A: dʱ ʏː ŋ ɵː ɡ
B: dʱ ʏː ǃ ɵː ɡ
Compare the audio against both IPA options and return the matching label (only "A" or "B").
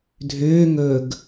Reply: A